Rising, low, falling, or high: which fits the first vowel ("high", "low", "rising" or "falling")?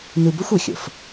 low